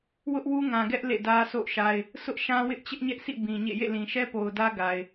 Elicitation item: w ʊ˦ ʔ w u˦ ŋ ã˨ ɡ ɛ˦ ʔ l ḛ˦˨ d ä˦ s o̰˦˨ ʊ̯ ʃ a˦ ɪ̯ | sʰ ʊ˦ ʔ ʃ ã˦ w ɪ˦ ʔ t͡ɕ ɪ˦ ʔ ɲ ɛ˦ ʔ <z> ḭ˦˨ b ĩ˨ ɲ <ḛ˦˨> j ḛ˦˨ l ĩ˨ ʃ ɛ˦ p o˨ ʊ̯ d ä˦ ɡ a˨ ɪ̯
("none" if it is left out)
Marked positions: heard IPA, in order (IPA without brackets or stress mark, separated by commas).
s, ḛ˦˨